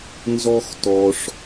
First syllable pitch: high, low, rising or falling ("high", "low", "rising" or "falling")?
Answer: high